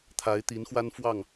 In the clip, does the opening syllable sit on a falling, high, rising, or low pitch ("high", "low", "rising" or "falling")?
rising